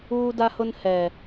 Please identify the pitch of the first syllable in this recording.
high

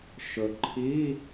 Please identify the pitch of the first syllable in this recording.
low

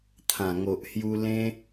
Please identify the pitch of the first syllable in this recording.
low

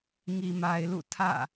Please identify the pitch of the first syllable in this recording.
low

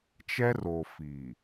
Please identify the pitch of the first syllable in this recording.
high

